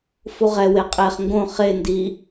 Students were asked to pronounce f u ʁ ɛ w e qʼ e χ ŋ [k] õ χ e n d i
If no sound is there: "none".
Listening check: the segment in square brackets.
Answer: ɡ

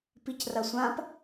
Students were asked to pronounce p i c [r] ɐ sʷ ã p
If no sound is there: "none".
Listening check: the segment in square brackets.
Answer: r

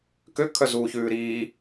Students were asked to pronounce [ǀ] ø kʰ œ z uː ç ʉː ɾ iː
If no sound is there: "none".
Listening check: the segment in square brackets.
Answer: k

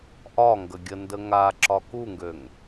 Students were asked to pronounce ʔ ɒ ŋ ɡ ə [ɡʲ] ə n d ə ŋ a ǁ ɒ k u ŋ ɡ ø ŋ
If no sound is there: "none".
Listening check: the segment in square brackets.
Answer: ɡʲ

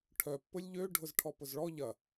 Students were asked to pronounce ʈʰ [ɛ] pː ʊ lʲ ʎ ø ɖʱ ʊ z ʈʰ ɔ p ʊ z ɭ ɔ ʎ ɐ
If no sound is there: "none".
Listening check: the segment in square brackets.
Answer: œ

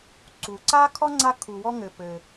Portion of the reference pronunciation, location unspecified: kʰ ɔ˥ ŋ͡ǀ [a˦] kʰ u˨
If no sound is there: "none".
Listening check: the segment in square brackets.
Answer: a˦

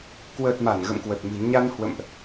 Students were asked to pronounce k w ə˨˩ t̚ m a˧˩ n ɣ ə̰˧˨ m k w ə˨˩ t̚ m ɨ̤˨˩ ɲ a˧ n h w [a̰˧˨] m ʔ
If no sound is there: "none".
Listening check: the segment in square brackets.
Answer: ə̰˧˨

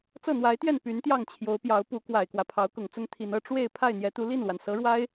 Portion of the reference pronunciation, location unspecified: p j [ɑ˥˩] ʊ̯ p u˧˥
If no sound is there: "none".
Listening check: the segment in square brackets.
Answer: ɑ˧˥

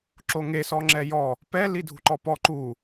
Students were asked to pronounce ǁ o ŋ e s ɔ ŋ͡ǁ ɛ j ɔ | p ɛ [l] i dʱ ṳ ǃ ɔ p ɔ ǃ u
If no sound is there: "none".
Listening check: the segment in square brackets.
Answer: l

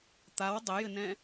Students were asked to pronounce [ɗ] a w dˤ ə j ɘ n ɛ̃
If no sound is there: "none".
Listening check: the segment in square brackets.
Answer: t̪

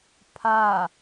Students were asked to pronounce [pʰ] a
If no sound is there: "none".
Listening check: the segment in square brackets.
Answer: pʰ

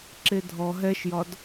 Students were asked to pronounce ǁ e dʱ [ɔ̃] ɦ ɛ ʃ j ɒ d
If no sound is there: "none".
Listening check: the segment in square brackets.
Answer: ɔ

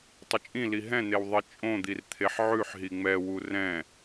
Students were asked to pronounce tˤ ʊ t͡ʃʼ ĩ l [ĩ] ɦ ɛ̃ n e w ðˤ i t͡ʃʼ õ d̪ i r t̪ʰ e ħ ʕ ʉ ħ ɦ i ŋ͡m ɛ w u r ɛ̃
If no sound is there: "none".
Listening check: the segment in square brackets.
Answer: i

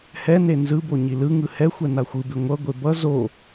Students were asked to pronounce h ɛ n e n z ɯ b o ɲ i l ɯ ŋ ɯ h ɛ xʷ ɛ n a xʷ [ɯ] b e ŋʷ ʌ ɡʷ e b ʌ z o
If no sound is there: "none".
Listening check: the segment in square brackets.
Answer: ɯ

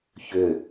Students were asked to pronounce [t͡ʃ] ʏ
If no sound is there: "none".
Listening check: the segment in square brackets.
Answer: ç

